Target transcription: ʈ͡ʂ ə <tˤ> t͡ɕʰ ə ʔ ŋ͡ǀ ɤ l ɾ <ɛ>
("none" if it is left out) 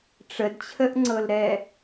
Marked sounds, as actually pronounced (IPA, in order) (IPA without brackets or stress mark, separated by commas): d, ɛ